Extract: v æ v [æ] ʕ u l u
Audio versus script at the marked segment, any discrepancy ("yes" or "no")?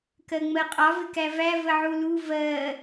yes